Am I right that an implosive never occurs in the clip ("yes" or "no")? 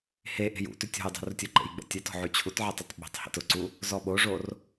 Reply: no